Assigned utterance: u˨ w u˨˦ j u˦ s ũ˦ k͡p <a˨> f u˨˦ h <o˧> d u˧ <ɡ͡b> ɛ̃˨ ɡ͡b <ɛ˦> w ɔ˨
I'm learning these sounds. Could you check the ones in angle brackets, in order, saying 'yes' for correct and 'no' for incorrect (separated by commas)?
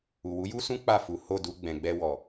no, no, yes, no